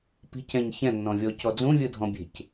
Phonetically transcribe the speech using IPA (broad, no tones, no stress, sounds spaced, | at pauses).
p i̤ c ɛ̃ ɲ ç ɛ̃ nː ɔ̃ vʲ ɔ c ɔ d͡z ũ vʲ ɯ dʱ ɔ̃ bʲ e̤ c